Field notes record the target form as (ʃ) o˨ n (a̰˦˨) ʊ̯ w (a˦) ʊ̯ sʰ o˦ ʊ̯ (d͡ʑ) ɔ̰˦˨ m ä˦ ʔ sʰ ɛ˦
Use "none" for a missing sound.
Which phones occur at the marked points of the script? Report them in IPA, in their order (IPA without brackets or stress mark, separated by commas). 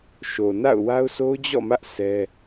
ʃ, a̰˦˨, a˦, d͡ʑ